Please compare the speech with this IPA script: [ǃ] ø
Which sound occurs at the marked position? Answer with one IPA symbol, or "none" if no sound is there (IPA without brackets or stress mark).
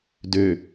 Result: d